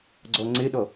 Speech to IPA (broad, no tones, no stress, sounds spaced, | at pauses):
ɡ͡ǀ ɔ ŋ͡ǀ ɪ ɗ ɔ